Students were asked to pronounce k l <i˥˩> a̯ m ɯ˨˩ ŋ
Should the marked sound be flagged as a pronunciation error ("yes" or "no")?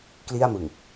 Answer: no